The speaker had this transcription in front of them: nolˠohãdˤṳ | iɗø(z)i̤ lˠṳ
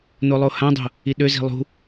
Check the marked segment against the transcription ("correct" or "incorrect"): correct